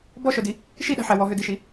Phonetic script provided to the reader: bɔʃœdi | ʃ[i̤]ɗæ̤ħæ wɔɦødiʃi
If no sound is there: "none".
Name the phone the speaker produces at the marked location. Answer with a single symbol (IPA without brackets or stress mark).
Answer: i